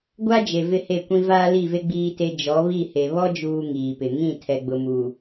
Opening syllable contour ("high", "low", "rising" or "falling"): high